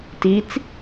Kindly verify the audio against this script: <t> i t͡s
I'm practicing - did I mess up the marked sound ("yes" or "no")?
no